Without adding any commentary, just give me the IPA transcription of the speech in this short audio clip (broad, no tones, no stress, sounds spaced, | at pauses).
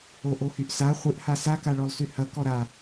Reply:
o ʔ o h y ʔ s a χʷ ɨ ʔ h a s a k a ɭ ɔ lˠ s y h ɐ k ɔ ɾ a